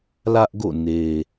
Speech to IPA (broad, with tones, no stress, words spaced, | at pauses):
lä˦ʔɡo̰˦˨ ne˨